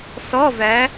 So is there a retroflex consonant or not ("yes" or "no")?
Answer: no